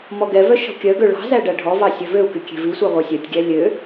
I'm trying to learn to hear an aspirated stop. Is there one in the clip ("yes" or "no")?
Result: no